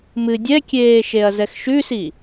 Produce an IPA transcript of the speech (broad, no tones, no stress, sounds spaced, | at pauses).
m ɨ dʲ ɛ kʲ eː ʃ e ɐ̯ z ɛ x ʃ ʉ s i